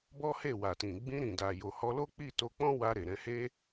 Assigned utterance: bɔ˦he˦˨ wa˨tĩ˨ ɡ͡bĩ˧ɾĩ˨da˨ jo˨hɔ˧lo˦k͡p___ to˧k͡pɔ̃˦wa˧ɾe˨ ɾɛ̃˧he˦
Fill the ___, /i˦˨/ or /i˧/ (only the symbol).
i˦˨